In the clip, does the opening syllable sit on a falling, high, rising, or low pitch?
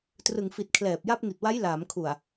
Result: low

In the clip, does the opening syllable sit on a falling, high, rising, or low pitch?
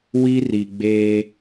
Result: high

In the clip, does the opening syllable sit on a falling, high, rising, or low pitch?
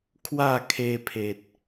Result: falling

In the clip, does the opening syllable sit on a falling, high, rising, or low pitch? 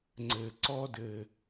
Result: low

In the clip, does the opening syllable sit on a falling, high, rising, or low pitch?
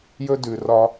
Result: high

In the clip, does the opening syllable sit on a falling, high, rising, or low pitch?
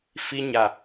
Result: high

